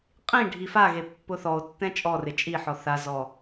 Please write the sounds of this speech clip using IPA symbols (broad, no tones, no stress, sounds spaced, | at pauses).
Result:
qʼ ĩ ɖʱ i f a ɣ e pː ʊ θ ɔ o̯ tː ɛ̃ t͡ʃʼ ɔ r ɪ t͡ʃʼ i ħ ɔ θ a z ɔ